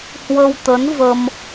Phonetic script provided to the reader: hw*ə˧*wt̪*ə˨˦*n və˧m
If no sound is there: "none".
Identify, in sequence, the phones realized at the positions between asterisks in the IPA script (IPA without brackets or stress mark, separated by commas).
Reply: ə˧, ə˨˦